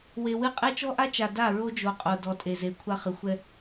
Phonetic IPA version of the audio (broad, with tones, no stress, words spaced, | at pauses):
we˨wɨ˦ qʼe˦t͡ʃɔ˦ʔa˦t͡ʃa˨ da˦˨ɹo˦d͡ʒo˨qʼo˨ dɔ˨tʼe˨ze˨ kʷʰa˦χɨ˨ xʷɛ˦